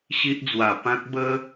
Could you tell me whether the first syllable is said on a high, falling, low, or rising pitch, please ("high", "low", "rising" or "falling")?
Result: high